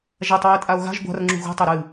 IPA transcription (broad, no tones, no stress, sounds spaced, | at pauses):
ʒ a tˤ w ɨ e̯ tʼ a o̯ ɣ a̤ ʒ ɡʷ a̤ r ŋ͡ǁ ṳ ɣ ṳ tˤ æ ɾ ɨ